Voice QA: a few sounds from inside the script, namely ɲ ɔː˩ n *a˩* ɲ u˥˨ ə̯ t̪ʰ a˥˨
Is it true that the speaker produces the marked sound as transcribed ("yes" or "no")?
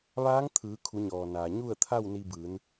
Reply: no